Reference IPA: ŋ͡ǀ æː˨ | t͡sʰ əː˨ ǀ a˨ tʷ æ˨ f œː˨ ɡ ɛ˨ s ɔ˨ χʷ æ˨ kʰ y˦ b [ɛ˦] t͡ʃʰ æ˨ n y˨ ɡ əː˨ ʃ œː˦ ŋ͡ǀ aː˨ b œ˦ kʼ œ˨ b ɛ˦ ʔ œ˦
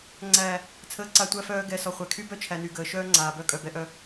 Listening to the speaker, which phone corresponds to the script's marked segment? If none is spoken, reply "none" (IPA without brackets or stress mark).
œ˦